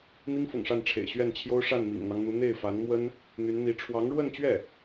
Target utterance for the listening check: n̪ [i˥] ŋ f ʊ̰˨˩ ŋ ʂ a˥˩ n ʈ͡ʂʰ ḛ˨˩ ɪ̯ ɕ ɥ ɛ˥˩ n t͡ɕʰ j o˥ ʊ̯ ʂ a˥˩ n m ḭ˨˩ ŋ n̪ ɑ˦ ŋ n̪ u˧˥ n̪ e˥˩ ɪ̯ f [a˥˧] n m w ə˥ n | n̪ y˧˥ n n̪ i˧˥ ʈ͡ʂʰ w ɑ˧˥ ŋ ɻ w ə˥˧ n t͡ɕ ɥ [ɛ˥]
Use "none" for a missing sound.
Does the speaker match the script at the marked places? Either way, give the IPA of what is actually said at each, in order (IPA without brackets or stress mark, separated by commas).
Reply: i˥, a˧˥, ɛ˥˩